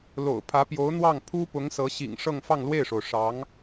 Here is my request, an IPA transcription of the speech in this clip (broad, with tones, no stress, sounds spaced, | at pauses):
l o̰˨˩ ʊ̯ pʰ ä˧˥ p j o˧˥ ʊ̯ n̪ w ɑ˥˩ ŋ pʰ u˥ p ʊ˧˥ ŋ s ɤ˧˥ ɕ ḭ˨˩ ŋ ʂ ɤ˥˧ ŋ f ɑ˥˧ ŋ l w e˥˩ ɪ̯ ʂ o˩ ʊ̯ ʂ ɑ˧˥ ŋ